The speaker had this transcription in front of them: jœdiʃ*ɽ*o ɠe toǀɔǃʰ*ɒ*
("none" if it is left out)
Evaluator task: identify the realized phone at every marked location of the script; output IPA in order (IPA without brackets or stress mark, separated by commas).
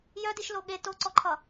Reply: l, ʌ